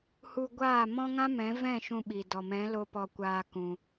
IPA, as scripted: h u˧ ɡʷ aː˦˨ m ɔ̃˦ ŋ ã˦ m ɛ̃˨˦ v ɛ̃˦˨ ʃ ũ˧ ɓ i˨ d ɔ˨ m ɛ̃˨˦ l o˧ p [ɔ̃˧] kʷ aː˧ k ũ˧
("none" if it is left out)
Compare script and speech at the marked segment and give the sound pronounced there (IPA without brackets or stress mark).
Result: ɔ˧